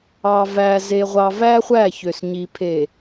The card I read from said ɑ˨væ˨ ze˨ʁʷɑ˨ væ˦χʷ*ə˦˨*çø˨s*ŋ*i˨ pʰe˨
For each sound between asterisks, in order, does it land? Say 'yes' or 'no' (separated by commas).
no, no